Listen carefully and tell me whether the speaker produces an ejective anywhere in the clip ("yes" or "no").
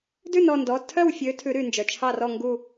no